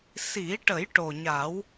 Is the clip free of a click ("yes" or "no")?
yes